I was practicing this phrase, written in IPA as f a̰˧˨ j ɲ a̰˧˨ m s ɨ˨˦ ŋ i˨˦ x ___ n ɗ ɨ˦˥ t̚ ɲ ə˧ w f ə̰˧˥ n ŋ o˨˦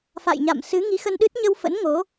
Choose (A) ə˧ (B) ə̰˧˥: A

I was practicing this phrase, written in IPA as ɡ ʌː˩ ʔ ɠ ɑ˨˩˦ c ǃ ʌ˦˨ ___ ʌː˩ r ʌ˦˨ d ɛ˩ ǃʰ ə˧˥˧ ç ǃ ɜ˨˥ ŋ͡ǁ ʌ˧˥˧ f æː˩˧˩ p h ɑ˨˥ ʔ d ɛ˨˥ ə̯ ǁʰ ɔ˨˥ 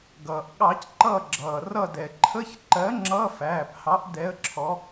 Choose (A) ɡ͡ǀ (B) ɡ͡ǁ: B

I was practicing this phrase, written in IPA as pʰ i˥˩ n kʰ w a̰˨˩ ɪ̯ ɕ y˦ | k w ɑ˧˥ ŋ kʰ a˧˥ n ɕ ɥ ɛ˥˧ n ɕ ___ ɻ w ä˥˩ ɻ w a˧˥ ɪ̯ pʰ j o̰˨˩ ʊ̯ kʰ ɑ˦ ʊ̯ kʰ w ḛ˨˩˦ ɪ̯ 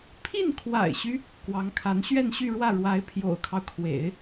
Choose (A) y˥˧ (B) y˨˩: A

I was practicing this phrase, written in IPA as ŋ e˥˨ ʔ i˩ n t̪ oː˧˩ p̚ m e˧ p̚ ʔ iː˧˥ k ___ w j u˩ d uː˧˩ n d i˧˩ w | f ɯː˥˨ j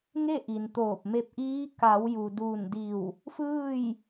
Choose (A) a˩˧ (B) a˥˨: A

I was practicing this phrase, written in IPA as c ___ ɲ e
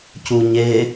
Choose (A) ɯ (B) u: B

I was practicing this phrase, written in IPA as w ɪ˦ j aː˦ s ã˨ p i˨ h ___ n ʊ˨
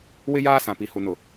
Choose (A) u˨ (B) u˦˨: A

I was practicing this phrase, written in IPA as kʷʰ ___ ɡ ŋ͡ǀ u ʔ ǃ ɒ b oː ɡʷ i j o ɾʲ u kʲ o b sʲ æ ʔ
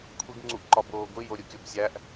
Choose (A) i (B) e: A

